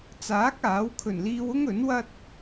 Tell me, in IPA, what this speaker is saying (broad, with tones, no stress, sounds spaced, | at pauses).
t͡s aː˨˥ k̚ aː˨˥ w kʰ ɵ˨˩ n l iː˧ w ʊ˥ ŋ ɵ˨˥ n w ɐ˥ t̚